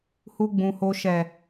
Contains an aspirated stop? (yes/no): no